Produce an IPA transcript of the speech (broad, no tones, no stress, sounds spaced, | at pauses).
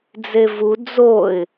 d͡z e v u d͡z o ɪ̯